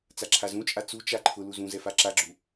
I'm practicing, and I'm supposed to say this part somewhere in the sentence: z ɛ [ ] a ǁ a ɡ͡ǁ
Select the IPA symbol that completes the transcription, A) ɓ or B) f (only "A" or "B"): B